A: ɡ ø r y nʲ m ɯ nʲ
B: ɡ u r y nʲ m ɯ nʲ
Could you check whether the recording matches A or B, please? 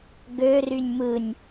A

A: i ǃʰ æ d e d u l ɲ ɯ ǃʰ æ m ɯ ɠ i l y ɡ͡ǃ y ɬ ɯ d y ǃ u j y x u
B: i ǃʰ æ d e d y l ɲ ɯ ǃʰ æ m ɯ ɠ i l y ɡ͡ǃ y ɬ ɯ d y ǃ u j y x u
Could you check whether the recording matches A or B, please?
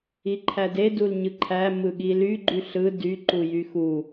A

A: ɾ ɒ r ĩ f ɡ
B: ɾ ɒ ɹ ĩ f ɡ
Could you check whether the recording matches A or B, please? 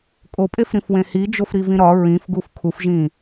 B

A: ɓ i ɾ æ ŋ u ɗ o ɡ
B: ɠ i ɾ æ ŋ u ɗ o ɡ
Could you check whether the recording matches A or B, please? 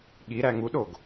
B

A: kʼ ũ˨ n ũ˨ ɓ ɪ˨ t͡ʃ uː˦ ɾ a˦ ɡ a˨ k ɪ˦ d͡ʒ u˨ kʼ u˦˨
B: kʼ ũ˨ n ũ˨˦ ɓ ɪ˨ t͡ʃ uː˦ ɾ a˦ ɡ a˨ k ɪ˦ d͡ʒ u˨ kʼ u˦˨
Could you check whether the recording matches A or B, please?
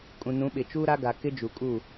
B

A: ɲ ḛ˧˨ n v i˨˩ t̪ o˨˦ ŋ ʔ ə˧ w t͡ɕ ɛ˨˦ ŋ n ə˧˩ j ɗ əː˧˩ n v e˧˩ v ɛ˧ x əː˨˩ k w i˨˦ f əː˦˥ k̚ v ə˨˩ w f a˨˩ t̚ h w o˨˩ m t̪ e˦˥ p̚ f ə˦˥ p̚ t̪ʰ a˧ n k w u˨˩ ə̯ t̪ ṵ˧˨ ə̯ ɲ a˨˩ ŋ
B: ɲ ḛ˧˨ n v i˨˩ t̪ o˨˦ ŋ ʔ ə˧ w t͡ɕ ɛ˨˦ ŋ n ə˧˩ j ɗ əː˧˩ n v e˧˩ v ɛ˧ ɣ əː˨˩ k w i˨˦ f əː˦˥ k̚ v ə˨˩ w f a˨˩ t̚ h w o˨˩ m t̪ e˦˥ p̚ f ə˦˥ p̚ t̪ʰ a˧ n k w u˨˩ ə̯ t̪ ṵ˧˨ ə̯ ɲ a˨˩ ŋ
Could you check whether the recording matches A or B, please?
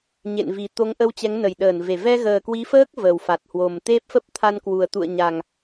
B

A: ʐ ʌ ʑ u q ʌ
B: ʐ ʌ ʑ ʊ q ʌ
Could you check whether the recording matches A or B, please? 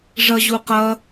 A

